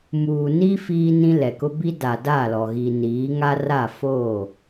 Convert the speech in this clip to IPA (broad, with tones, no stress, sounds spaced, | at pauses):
m uː˨ n i˦ f iː˦ n ĩ˦ l ɛ˨ k ʊ˦ b i˦ d a˨ d a˦˨ l ɔ˨ ɣ i˨ n iː˨˦ ŋ a˦ r a˦˨ f oː˦˨